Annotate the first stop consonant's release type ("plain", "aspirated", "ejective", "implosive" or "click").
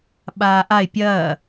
implosive